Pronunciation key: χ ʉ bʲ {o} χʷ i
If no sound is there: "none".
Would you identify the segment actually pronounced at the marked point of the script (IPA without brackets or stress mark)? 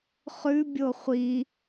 o